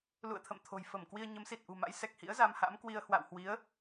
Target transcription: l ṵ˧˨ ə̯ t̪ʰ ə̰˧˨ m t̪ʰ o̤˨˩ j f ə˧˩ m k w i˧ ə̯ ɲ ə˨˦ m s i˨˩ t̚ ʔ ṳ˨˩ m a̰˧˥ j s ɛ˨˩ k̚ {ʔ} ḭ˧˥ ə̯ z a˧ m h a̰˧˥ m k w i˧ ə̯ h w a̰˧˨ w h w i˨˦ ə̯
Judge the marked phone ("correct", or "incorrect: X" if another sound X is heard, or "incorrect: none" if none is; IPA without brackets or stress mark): incorrect: h